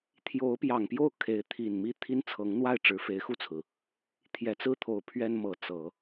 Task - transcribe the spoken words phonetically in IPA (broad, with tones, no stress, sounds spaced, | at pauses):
t̪ʰ j o˧˥ ʊ̯ p j ɑ˨˩ ŋ p j o˥˩ ʊ̯ kʰ e˧˥ ɪ̯ t̪ʰ i˨˩ n m i˥˩ t̪ʰ i˥ n t͡sʰ ɤ˧˥ ŋ n̪ w a˥˩ ɪ̯ ʈ͡ʂ ɻ̩˧˥ f e˧˥ ɪ̯ x u˥˩ t͡sʰ ɹ̩˩ | t̪ʰ j ɛ˨˩ t͡s ɹ̩˥˩ t̪ʰ o˨˩ ʊ̯ pʰ ɥ ɛ˥ n m ɤ˧˥ t͡s ɤ˨˩˦